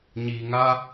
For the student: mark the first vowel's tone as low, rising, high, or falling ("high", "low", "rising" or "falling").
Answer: low